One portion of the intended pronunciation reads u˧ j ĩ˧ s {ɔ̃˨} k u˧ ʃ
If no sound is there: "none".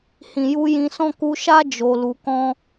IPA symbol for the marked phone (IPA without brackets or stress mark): ɔ̃˦